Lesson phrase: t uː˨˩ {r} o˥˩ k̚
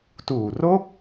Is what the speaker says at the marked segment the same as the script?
yes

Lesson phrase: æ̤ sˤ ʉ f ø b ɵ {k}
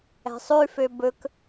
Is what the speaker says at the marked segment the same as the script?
yes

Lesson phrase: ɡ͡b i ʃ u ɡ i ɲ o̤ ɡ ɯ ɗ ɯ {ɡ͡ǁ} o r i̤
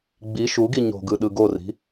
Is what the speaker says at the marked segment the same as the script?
no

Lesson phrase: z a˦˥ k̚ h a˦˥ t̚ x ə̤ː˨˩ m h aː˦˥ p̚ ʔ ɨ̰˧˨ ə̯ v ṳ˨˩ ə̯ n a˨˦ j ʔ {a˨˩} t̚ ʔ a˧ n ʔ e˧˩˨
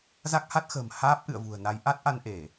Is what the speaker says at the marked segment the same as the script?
no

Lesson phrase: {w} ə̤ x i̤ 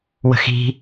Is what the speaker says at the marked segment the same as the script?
yes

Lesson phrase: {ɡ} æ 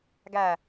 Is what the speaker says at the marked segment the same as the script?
yes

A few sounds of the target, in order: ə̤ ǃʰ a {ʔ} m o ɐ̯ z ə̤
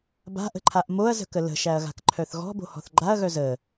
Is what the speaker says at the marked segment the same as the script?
yes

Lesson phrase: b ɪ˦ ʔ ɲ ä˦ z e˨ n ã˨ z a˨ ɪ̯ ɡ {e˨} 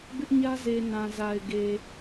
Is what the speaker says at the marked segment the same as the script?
yes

